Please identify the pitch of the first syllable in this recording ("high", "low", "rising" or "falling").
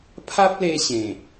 high